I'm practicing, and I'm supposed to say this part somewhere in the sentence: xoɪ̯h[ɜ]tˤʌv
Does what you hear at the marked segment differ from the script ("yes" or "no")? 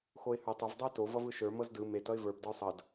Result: yes